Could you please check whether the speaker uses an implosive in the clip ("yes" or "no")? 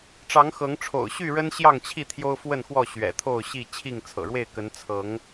no